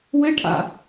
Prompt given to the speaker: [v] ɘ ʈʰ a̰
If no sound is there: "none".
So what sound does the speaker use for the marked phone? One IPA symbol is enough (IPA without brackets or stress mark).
w